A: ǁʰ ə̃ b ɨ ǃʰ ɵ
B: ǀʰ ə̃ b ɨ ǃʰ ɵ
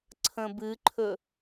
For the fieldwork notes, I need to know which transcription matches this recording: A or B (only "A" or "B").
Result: B